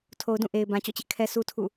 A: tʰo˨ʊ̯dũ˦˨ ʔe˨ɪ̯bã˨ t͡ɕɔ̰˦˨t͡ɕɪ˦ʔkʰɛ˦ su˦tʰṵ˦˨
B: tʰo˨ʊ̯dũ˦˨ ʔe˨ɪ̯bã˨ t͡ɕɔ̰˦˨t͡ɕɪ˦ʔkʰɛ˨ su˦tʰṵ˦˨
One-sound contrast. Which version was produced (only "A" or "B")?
A